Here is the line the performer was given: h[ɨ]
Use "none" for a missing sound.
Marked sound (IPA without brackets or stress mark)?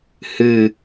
ɨ